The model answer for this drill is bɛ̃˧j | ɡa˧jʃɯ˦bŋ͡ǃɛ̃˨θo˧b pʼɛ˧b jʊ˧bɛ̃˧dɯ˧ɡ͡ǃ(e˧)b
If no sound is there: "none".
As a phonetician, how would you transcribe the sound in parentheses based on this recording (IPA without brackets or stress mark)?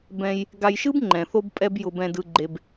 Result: e˧